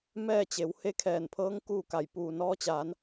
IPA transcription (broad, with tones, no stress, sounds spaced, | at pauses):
m ɛː˥˨ t͡ɕ e˩˧ w h e˧˥ kʰ ɛː˧˩ n pʰ ɤː˧˥ ŋ k uː˥˨ k a˧˩ j p uː˩ n ɔː˧ t͡ɕ aː˩˧ n